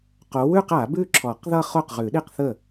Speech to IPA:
q o˨˦ w ʉ˥˧ q a˨˩˦ b ʉ˥˧ ǁʰ ɔ˨˩˦ q ð ʌ˥˧ χ o˥˩ q ʁ ʉ˨˩˦ ɗ i˥˧ q θ ə˥˩

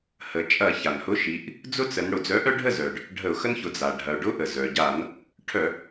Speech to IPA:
h ə˩˧ t͡ʃʼ ɐ˧˩˧ ç a˩ n h ʊ˨˥ ʃ i˩˧ ʔ | d͡z ʊ˦ t͡s ə˩˧ n ɽ ʊ˩ d͡z œ˨˥ ʔ œ˦ ɖʱ ə˥˨ z œ˩ ɖ | ɖʱ ə˧˩˧ ʊ̯ x ə˦ n ç ʊ˩˧ d͡z a˩ ɖʱ ɐ˩ ʊ̯ ɖ ʊ˦ ʔ ə˩ z œ˩ ɟ a˧˩˧ n | ʈʰ œ˧˩˧

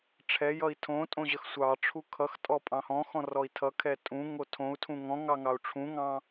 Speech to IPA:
ʈ͡ʂʰ ɛ j ʌ i̯ tʰ õ tʼ õ ʑ ə x sʷ ɑ ʈ͡ʂʰ u kʰ ʌ x tʼ ɔ pʼ ɑ̃ h ɔ̃ x ɔ̃ r ɔ i̯ tʰ ʌ kʰ ɛ tʼ ũ ŋ o tʰ õ u̯ tʰ ũ ŋ ɔ̃ ŋ ɑ ŋ ɑ u̯ ʈ͡ʂʰ ũ ŋ ɑ̃

